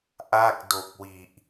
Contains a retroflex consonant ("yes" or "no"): no